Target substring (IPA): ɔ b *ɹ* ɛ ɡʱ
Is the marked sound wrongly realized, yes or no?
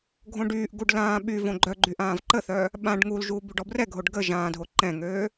yes